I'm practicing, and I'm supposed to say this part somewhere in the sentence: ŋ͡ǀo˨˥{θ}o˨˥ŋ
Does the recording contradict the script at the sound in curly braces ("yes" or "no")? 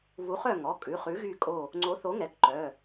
no